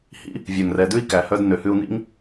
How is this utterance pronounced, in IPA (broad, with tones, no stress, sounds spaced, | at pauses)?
h ḭ˦ | vʲ œ˨ ŋ r ɛ˨ d ʉ˦ i̯ k æ˨ h œ˧ d n ø˨ h ʉ˧ u̯ n ḭ˦ ŋ